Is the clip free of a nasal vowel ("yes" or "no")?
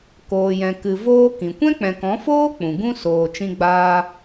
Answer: no